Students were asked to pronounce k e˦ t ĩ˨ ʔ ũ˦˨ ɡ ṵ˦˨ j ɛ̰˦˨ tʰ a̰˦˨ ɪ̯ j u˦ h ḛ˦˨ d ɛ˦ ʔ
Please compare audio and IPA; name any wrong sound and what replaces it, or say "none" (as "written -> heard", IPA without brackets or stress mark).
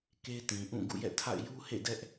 none